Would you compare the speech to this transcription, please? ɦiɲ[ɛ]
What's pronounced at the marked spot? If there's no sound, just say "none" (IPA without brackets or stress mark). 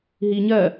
ɜ